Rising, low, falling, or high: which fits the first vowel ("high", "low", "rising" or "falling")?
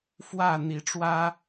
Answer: falling